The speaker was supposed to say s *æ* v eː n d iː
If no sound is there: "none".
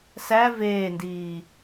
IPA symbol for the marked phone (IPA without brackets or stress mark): æ